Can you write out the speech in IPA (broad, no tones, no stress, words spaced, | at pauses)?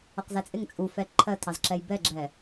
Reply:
ʊqzæt͡sʼɪŋ t͡sʼufɛ ǃʰɜtʰɑzǁɛj bɛɡ͡ǁɛ